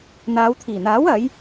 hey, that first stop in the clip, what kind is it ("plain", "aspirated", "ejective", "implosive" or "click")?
aspirated